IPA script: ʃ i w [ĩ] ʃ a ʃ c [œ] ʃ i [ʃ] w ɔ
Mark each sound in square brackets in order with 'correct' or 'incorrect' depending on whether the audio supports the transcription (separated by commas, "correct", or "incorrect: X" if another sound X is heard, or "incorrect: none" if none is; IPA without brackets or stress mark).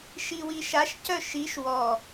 incorrect: i, correct, correct